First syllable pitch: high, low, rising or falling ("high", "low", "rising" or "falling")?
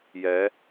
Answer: rising